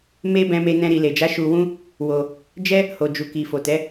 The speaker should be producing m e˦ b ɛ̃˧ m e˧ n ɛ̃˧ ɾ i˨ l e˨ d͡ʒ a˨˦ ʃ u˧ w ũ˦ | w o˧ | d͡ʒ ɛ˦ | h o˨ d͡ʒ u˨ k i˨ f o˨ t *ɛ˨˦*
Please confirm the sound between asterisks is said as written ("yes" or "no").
yes